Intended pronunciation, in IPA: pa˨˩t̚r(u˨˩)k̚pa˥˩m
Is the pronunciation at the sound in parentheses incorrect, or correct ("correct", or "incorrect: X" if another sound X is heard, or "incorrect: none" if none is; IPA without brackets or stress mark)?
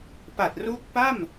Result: incorrect: u˦˥